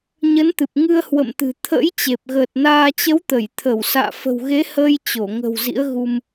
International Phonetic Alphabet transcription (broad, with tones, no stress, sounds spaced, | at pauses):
ɲ ə˨˦ n t̪ ɨ˨˩ p̚ ŋ ɨ˧ ə̯ h w ə̰˧˨ m t̪ ɨ̤˨˩ t̪ʰ ə̰˧˥ j t͡ɕ e˨˩ p̚ ɣ əː˨˩ t̚ n aː˧ t͡ɕ ə˨˦ w t̪ ə˧˩ j t̪ʰ ə˧˩ w s a̰ː˧˨ f ə̤˨˩ w ɣ e˨˦ h əː˧ j t͡ɕ o˧˩ ŋ ə̤˨˩ w z ḭ˧˥ ə̯ ɣ u˧ m